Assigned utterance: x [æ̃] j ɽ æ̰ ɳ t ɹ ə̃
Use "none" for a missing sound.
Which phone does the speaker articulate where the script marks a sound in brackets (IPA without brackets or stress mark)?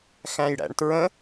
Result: æ̃